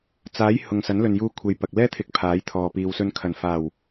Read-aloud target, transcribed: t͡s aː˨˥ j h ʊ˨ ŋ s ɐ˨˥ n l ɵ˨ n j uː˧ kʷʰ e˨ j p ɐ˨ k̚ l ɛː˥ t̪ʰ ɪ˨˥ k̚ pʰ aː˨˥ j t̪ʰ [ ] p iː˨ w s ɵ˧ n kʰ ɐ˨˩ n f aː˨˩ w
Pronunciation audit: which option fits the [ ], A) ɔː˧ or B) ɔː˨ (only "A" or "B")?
B